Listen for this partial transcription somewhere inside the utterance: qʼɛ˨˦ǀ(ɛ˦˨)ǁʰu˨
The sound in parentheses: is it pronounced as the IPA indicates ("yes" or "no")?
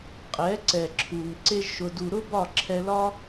no